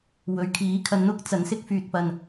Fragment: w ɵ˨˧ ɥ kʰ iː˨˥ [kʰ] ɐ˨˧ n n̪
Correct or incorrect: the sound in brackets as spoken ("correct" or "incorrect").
correct